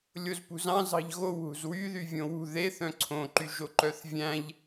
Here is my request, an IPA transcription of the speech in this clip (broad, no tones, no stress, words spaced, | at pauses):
lʲozpṳzɑ̃ zɑ̤ʎɣow ɦṳzwyðy vʲõwṳ ðeθ œ̃ǀʰõǃyʒo ǃœθvʲæ̃ʎ